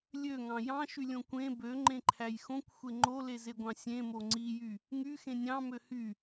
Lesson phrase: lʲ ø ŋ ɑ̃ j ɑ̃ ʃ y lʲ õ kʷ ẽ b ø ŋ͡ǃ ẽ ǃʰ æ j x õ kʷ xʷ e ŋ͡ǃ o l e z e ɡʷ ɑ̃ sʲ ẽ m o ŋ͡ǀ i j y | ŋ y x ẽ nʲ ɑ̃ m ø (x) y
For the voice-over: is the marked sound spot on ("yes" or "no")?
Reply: no